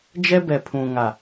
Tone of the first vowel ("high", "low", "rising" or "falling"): high